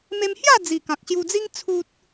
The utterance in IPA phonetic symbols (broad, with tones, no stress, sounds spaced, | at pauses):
m e˧ m h j a˥˧ d͡z i˨˩ k ã˨ k̚ ɕ j u˧ d͡z i˦ ŋ t͡sʰ u˦ t̚